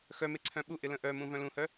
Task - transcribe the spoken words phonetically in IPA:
x œ m e ǀʰ œ̃ ɓ u ʔ ɪ l ə̃ ʔ œ m ũ v œ̃ l ũ h œ

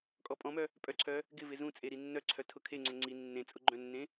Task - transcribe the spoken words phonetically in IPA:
kʼ ɔ pʼ ɔ̃ m œ | pʼ œ ǀʰ œ | ɡ ɪ v ɪ z ũ t͡sʼ e ɾ i nː œ ǀʰ œ tʰ ʊ kʰ e ŋ͡ǀ ʊ ŋ͡ǀ i nː ẽ t͡sʼ ʊ ɡ͡ǃ œ̃ nː ẽ

